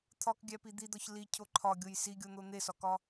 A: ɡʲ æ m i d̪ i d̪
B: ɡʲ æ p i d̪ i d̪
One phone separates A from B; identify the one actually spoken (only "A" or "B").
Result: B